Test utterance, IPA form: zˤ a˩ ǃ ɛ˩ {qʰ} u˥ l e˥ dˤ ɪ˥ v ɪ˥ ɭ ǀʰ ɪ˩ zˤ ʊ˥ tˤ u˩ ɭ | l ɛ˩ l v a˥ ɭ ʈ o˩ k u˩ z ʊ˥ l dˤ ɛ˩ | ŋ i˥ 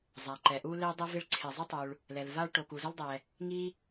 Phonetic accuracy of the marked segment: incorrect: ʔ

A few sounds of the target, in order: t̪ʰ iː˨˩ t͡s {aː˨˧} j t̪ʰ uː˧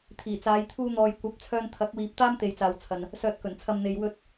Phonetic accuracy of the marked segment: correct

